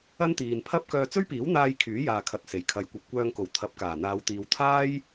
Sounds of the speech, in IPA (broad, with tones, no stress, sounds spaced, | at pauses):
ɐ˥ n t̪ iː˨ n pʰ ɐ˥ p̚ k œː˧ t͡s ɵ˥ ɥ p iː˨˥ w n̪ aː˧ j kʰ yː˨˥ j aː˨ kʰ ɐ˨ t̚ s e˨˩ j kʰ ɐ˨˧ j kʷ ɐ˨ p̚ kʷ œː˧ ŋ k o˨˩ w t̪ʰ ɐ˨˥ p̚ k aː˨˩ n̪ aː˨˧ w t̪ iː˨ w t̪ʰ aː˥ j